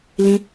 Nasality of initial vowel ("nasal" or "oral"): nasal